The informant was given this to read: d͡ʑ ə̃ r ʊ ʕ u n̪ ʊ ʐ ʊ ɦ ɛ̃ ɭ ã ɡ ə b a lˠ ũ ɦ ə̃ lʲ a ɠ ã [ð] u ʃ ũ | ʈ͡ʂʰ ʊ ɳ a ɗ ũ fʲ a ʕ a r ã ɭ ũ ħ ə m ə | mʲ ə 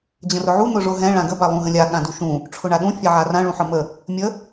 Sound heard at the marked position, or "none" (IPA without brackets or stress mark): d